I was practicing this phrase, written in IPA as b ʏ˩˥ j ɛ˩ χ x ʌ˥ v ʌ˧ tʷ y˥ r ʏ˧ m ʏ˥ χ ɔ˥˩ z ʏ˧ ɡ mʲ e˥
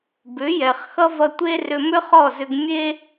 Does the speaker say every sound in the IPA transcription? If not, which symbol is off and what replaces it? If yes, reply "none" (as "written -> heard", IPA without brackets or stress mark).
y˥ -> e˥